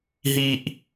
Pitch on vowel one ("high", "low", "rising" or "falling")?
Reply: high